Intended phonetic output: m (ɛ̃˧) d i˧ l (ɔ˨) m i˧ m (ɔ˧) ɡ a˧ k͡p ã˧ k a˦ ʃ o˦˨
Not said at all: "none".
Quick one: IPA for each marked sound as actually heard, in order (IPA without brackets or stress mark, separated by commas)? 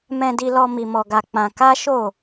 ɛ̃˧, ɔ˧, ɔ˧